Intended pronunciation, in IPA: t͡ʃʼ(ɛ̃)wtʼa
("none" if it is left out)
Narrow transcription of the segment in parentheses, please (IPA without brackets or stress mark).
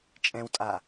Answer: ɛ̃